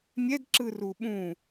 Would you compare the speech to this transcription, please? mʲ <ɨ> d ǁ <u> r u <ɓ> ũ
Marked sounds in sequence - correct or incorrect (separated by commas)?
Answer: incorrect, incorrect, correct